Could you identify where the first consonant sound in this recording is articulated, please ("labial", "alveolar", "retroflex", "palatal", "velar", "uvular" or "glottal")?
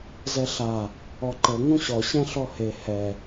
alveolar